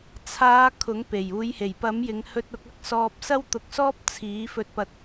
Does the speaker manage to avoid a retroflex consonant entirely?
yes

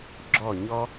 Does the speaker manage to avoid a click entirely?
no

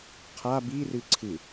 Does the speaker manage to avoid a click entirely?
no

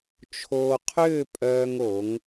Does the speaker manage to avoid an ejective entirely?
no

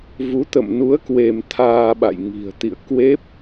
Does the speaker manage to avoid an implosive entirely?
no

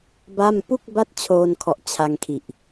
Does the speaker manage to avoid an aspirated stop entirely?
no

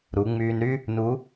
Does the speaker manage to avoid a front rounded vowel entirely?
no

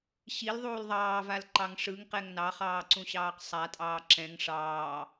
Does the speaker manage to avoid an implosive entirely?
yes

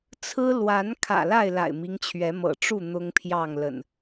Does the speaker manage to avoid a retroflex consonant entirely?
no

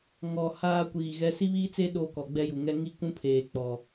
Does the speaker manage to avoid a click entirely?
yes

